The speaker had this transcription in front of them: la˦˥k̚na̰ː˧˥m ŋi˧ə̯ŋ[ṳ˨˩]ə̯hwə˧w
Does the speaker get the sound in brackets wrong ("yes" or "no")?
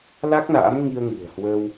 no